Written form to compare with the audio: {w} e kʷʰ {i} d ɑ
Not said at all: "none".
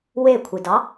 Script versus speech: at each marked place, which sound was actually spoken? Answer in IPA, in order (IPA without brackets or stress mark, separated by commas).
w, i